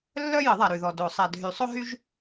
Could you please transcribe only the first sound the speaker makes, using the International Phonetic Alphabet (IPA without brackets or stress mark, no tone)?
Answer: lː